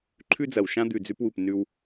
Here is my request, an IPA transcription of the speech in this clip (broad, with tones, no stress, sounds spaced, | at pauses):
ǃʰ ʉ˦ d͡z ɐ˨ w ʃ ã˦ d̪ ʉ˨ d͡z ʉ˧ p w u˨ p n ʉ˧ w